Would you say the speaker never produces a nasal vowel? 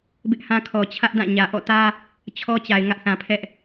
no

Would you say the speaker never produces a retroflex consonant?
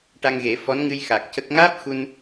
no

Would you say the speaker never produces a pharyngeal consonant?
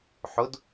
no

